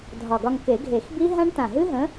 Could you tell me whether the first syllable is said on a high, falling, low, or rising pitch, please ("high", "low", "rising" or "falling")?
low